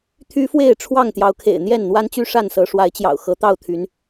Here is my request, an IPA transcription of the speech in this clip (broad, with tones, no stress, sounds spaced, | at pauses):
t̪ʰ y˦ f w e˥˨ ɪ̯ ʈ͡ʂʰ w ɑ˥˨ ŋ t̪ j ɑ˨˦ ʊ̯ kʰ ḛ˨˩ ɪ̯ n̪ j ɛ˥˨ n n̪ w a˦ n t͡ɕ y˥˨ ʂ a˥˨ n s ɤ˨˦ ʂ w a˨˦ ɪ̯ t͡ɕ j ɑ̰˨˩ ʊ̯ x ɤ˨˦ t̪ ɑ˥˨ ʊ̯ t̪ʰ y˨˦ n